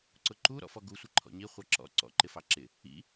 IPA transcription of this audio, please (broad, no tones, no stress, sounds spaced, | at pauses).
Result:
ǀ ʊ ǃ u ɾ ɔ̰ f ɔ ɡ u sʷ ɪ ǃʰ ɔ̰ ɲ i χʷ ɑ ǁ ɔ̰ ǀ ɔ̰ ǃ ɪ f ɑ ǁ ɪ | ḭ